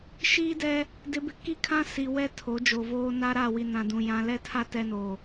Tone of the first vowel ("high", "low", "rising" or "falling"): high